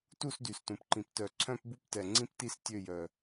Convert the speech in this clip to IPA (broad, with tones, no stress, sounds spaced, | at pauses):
t u˥˨ s d y˨˩ s t ũ˨˩ p ǃ ĩ˨˩ p t œ˨˩ ǀʰ œ̃˥˨ p b u˥˨ p t ɛ˨˩ ŋ͡ǀ ĩ˥˨ p t i˥˨ s tʲ ø˥˨ j œ˨˩